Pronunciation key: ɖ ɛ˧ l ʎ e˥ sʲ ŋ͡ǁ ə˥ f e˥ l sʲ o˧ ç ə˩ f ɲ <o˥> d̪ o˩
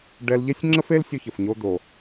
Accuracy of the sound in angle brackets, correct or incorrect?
incorrect